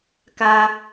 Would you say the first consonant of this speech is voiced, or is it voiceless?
voiceless